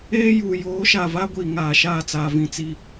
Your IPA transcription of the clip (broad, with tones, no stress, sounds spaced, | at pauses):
eː˦ j u˨ j oː˨˦ ʃ a˨ v a˦ ɡʷ iː˨ ŋ aː˨ ʃ aː˦˨ t͡s aː˨ v ĩ˨ t͡s iː˦